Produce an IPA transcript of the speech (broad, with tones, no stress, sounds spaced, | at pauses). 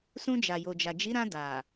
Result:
s ũ˧ d͡ʒ a˨ j o˨ d͡ʒ a˨ d͡ʒ i˨˦ ɾ ã˧ d a˨